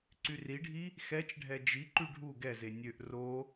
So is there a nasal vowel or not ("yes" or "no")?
no